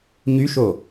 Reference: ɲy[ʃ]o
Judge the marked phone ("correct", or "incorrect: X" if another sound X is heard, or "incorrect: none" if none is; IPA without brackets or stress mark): correct